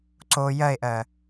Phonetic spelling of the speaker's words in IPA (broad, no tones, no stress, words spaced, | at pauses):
ǀo jɜe̯ʔɜ